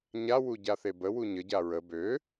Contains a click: no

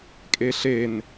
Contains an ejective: yes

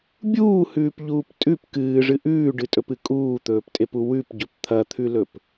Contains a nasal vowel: no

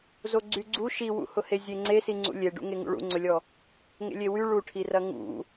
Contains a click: yes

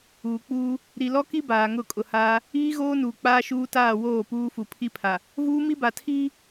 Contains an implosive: no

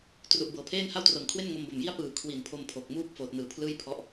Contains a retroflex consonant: no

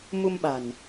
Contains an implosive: yes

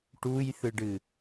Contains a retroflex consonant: yes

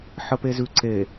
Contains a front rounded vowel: no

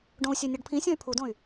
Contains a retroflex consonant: yes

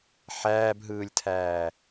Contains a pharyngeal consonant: yes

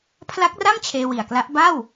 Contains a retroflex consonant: no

